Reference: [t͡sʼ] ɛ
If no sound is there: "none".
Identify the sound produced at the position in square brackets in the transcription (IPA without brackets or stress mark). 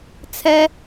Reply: t͡sʰ